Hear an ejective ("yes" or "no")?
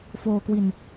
no